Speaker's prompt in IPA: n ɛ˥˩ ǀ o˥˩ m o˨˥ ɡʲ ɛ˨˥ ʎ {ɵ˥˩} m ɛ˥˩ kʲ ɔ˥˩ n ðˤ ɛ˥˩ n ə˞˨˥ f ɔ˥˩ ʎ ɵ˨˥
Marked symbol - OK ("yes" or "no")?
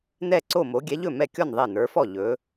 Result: yes